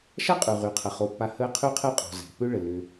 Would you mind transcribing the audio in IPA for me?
ʃa˥qʼʉ˩ʁy˩qʰə˩ χo˩pːa˨ həː˦qʰy˥qʰɛ˥ qʼɔ̤˨zɛ̤˩pʏ˥ ɭə˩lːʏ˨

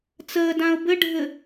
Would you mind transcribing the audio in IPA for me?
t͡səːdãʊ̯ bɘɖʱɘ

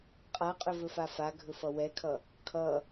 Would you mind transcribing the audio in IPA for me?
qʼaqʼɵvɵfa faɡʱɵfʌ wɛkʰʌ | kʰʌ

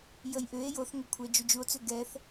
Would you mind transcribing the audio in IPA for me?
jəjʔʏe̯ joθŋʏkʷʰɛ d͡ʒud͡ʒuo̯t͡sʏ ɡɛθ

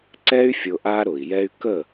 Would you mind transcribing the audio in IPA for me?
ǀɛ˦y̯ fʲʊ˧ʔa˦ɾʊ˨i̯jɛ˦y̯ kə˦˨

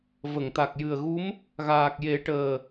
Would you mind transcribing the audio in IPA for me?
və˨˩˨ŋt̪a˨˩k̚ jɨ˨˩ə̯ɣu˧˥m | ɣaː˨˩k̚je˨˩˦ ʈəː˨˩

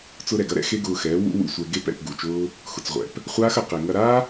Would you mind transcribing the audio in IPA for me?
t͡sʊ˧ɾɛ˨ɡɐ˦ ɾɛ̰˦xe˦ɡʊː˧xɛː˨˦ wṵ˦wṵ˨sʷɛ˧ ɡe˧p ɛ̰˦˨pɡu˨t͡ʃʊː˦ | xʊ˨t͡sʁʷɛ̰˨p | χʷaː˦xɐ˨ qe˨ŋɐ˧ ɾaː˦

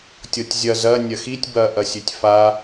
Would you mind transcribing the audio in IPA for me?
tʲɤtʲzʲɐ zɐ nʲɐxitʲ bɐʔɐsʲøtʲ fa

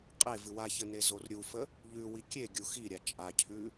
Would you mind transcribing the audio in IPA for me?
qʼevɨ waçənezor ɾʲufə | ʎʉwi kʲeɡʲu xiɾʲa t͡ʃʼacʰʉ

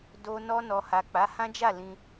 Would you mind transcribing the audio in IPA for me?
do˧ nɔ˧nɔ˨ ha˨k͡pa˨˦hã˦d͡ʒa˦˨ lĩ˧

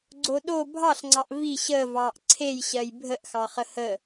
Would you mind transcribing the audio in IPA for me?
ɡ͡ǀoɗo bʱɑɬŋ͡ǀɑʔ vi ɕəːvɑːʔ ǀʰejɕɜj bʱəʔxɑχə hə

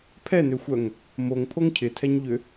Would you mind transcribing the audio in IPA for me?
pʰɛnøxʷœŋ | moŋpʰoŋ cʰɪtʰɛɲʎʏ

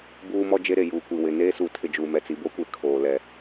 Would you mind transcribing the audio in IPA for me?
buː˦mɔ˦d͡ʒe˦ɾe˨ juː˨kʷi˨wɪ˨ neː˦su˨tʰɪ˨ d͡ʒuː˨mɛ˨t͡si˨ bo˦kʷe˨ kʰoː˨lɛ˨

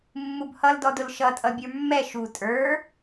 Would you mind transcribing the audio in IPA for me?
mːubhʌldɔdʊl ʃʌ tʼʌbʲə˞mːɛ ʃu tʼə˞

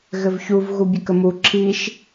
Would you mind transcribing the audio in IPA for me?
ɣɘvçuv ɣubʲɘkəmu ǁʰiʃ

